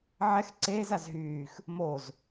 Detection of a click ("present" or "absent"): present